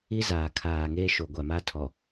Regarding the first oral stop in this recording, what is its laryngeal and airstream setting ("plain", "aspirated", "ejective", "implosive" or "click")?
aspirated